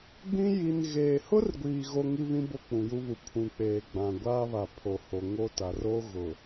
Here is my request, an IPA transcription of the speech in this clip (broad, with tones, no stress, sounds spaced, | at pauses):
ɡ͡b ĩ˦ j i˨ n ɣ eː˨ h ʊ˦ r ɡʷ iː˨ ɣ o˦ ŋ i˦ β ĩ˦ b o˦˨ k͡p ũ˨ j u˦ β u˨ pʰ ũ˨ k͡p eː˨ ɡ͡b ã˨ ɡʷ aː˦ β a˨ pʰ o˨ h o˨ ŋ o˦ t a˨ r o˦ ɣ ʊ˨